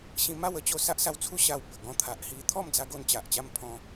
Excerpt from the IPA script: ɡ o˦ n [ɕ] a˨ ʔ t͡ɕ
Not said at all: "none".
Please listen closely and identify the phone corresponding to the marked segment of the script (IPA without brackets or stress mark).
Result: t͡ɕ